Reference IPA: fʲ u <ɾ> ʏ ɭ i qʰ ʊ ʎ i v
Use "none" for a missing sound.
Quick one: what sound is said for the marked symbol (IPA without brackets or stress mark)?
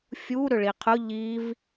ɾ